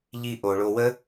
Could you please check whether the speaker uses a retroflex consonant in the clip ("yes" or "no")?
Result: yes